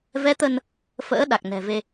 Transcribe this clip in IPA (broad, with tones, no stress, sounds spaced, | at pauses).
v ɛ˨˦ t̪ ə˧ n | f ə̰ː˧˥ ɗ a˨˩ k̚ n ɛ̤˨˩ v e˧